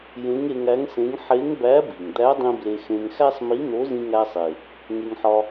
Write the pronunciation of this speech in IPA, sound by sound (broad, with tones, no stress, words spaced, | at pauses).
jẽ˧˥ŋe˧ŋæ˧˥ŋsẽ˧˥ŋ ħe˧˥ŋbæ˧˥ bi˩ŋ d̪æ˧˥dˤĩ˧ ble˧xẽ˧ŋ xæ˥sˤmi˧˥n̪o˧˥ zĩ˧ŋæ˧sˤe˩ | ŋe˧ŋħɒ˧